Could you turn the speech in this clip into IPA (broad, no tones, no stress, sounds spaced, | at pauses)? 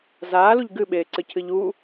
z aː l u ʎ ɡ ɨ ɓ eː ǀ ɨ cʰ ɨ ʎ u